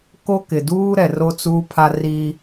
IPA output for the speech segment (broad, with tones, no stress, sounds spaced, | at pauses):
k o˦ k ɪ˨ d uː˦ ɾ ɛ˨ r o˦ t͡s uː˦ pʰ a˦ r iː˦